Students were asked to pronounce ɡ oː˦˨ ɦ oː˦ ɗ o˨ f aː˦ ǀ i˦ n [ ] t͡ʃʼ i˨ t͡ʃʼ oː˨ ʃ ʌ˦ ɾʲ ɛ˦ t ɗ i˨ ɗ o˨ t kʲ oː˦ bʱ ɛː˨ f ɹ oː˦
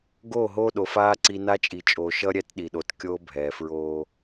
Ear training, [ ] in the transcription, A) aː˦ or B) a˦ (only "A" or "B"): B